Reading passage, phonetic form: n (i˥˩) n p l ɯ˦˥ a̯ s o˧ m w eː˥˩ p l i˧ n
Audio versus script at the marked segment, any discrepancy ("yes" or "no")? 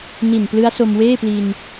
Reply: yes